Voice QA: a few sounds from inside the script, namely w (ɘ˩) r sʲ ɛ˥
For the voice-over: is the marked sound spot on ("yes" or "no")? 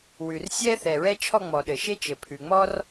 no